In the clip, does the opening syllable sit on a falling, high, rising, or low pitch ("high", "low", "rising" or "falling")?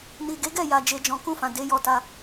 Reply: low